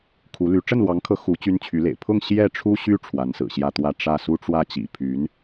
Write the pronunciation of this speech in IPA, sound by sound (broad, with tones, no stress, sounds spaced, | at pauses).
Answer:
kʰ u˧˥ l y˧˥ ʈ͡ʂ ə˥˩ n l w ɑ˧˥ ŋ kʰ ɤ˧˥ x u˧˥ t͡ɕ y˥ n t͡ɕʰ y˧˥ l ḛ˨˩ ɪ̯ pʰ ʊ˥˧ ŋ ɕ j ɛ˥˩ ʈ͡ʂʰ u˥ ɕ y˥ ʈ͡ʂʰ w a˧˥ n s ɹ̩˨˩ ɕ j ä˥˧ t̪ w ä˥˧ ʈ͡ʂ ä˥˩ s u˥ ʈ͡ʂ w ä˥˩ t͡ɕ ḭ˨˩ pʰ y˧˥ n